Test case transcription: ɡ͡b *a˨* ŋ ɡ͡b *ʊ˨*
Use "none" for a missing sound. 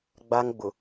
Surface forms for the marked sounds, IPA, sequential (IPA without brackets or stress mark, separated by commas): a˦, ʊ˨